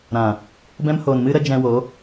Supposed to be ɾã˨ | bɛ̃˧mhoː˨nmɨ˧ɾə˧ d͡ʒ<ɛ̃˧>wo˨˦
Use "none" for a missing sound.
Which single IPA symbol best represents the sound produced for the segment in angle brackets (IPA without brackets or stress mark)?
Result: ɛ̃˧